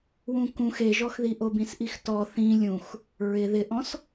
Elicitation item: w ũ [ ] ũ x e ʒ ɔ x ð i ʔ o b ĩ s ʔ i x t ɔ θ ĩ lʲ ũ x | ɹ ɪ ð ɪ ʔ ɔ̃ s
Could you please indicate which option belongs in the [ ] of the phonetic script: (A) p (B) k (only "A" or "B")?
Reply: B